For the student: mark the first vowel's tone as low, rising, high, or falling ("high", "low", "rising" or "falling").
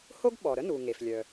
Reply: high